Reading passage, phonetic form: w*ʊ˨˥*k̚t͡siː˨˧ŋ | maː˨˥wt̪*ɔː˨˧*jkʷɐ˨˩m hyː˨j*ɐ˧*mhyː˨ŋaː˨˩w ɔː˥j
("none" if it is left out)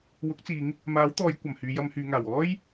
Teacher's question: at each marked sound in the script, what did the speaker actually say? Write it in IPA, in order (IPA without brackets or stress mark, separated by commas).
ʊ˨˥, ɔː˨˧, ɐ˧